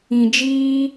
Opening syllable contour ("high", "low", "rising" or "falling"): low